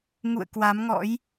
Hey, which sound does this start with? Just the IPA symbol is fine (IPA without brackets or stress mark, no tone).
ŋ